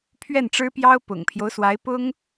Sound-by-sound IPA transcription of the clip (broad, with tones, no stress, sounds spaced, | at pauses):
pʰ ɥ ɛ˥˩ n ʈ͡ʂ ɻ̩˥ p j ɑ˥ ʊ̯ p ʊ̰˨˩ ŋ pʰ j o˦ ʊ̯ s w a˧˥ ɪ̯ p ʊ˥ ŋ